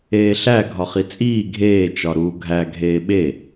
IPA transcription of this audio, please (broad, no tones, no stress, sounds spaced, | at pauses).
eː ɬ æ ɡʱ ɒ χ i t͡sʼ iː ɡʱ eː t͡ʃ ɒ ɾ uː ɡʱ æ ɡʱ eː ɓ e